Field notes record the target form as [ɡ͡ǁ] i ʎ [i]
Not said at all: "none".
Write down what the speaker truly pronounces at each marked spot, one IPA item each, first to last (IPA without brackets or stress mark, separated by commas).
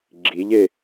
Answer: ɡ͡ǁ, e